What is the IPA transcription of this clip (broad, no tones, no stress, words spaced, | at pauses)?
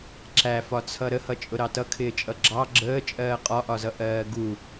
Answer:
ǁæfɒt͡sʰʌ ɾəhʌt͡ʃʼʊ ɾɑtʌkʰɪːt͡ʃʼʌ ɡ͡ǁɑ ɡ͡ǁəː t͡ʃʼɜːqʼɒʔɒzʌ ʔɜːɡu